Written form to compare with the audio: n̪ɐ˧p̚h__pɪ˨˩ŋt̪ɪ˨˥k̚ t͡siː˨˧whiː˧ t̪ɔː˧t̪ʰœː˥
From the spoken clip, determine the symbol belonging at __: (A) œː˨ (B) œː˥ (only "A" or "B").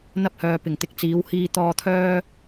A